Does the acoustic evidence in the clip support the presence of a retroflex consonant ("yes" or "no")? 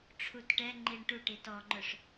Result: yes